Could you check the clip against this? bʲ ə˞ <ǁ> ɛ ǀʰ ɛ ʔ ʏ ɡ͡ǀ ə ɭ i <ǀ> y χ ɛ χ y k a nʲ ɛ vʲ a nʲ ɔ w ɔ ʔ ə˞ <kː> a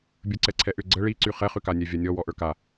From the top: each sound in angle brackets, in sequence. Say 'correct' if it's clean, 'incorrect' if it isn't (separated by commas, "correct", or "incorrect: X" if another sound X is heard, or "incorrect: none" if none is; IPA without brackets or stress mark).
incorrect: ǀ, correct, incorrect: k